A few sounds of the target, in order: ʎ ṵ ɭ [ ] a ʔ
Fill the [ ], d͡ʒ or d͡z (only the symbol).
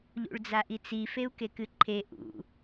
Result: d͡z